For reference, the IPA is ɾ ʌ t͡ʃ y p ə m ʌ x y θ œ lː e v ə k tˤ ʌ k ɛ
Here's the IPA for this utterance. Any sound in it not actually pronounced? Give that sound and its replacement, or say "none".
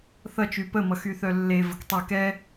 ɾ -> θ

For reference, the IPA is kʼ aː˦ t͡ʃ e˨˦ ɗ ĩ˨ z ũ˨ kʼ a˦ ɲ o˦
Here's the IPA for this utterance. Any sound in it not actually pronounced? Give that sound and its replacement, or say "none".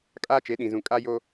ɲ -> j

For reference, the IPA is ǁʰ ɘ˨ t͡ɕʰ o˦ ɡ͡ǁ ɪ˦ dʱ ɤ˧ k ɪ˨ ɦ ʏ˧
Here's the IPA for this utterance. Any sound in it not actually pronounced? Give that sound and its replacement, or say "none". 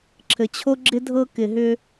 none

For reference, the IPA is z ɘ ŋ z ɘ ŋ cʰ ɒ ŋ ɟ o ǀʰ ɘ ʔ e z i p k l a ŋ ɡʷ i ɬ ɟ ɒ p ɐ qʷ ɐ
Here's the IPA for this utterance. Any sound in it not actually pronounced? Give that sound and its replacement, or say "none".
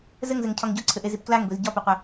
ɬ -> z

